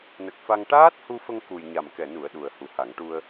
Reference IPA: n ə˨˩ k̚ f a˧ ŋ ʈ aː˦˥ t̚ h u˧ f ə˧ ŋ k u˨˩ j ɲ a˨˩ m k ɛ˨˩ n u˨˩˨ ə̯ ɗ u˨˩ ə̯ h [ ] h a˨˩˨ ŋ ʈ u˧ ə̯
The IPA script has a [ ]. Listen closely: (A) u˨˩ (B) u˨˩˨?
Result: A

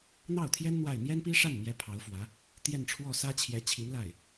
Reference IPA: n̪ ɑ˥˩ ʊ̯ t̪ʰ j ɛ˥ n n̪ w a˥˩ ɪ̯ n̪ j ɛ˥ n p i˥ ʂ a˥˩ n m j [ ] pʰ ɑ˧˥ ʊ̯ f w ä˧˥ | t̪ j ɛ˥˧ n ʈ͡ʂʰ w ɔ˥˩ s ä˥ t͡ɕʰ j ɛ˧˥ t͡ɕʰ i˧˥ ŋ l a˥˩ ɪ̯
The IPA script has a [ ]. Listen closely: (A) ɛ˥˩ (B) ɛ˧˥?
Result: B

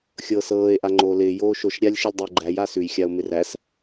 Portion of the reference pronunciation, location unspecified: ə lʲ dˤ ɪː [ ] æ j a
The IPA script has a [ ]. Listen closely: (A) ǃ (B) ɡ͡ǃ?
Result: B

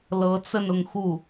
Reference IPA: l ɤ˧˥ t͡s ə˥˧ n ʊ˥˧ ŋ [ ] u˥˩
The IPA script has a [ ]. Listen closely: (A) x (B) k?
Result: A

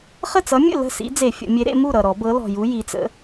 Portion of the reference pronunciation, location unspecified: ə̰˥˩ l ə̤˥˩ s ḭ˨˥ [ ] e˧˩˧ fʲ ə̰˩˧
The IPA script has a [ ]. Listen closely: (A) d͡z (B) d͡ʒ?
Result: A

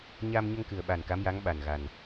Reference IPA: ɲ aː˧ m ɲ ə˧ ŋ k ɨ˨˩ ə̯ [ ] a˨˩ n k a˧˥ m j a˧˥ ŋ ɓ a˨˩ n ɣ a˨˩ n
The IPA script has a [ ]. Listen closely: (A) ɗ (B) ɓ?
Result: B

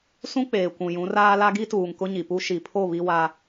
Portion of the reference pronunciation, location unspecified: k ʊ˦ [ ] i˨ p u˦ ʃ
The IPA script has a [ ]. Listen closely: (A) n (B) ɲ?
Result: B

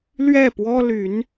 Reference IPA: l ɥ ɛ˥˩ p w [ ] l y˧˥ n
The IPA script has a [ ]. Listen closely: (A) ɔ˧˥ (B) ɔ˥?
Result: B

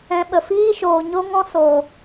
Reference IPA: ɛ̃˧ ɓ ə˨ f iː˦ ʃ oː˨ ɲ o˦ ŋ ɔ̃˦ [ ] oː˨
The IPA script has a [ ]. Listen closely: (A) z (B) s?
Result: B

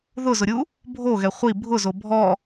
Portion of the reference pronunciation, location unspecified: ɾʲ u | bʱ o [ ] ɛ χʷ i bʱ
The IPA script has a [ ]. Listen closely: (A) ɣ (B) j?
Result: A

